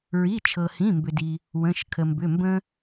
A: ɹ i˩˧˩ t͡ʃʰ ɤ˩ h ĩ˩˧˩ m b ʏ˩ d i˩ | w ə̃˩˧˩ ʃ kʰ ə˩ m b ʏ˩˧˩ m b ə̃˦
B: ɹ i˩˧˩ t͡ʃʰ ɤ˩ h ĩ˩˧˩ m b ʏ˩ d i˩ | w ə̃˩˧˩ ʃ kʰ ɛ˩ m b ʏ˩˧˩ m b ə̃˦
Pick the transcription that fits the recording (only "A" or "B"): A